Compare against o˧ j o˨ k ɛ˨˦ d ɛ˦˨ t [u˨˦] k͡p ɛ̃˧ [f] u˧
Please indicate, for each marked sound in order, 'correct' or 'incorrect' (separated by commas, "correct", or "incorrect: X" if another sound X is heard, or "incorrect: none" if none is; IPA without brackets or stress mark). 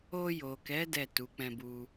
correct, incorrect: b